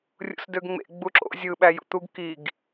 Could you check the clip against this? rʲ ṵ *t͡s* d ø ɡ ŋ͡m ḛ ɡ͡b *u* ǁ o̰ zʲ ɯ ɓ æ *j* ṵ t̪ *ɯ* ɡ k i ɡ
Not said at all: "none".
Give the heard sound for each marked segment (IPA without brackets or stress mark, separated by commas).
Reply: s, u, j, u